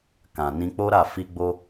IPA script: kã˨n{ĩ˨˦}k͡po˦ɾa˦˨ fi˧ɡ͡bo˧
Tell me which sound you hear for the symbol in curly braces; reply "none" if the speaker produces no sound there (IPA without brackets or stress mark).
ĩ˧